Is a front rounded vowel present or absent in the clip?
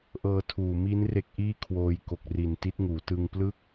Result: absent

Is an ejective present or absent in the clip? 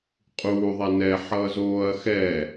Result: present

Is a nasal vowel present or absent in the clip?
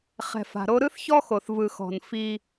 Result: absent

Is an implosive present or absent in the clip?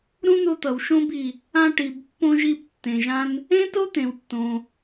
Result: absent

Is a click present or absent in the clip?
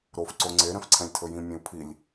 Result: present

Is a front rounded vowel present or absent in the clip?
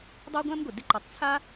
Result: absent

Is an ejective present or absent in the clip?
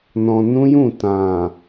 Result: absent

